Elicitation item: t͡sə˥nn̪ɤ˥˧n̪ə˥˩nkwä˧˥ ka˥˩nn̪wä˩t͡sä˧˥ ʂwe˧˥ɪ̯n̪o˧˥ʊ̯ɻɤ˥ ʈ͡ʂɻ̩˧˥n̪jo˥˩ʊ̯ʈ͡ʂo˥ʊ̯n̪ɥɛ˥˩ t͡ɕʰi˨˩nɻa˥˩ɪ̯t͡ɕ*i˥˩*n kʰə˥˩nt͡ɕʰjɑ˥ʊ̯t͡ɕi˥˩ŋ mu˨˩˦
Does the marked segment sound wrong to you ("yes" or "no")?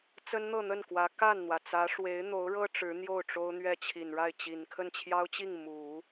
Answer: yes